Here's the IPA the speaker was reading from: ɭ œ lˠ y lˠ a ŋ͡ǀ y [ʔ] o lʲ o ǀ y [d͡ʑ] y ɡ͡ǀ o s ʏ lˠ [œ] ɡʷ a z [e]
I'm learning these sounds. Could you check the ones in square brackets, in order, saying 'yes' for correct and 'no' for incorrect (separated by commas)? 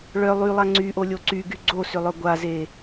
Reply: yes, no, yes, yes